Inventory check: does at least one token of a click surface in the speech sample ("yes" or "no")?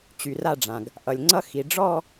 yes